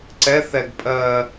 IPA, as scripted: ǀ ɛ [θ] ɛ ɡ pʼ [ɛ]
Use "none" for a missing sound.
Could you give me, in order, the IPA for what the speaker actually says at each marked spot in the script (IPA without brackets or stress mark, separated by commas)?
θ, ɜ